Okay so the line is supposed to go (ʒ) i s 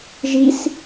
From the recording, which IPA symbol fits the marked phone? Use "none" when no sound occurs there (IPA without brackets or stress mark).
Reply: ʒ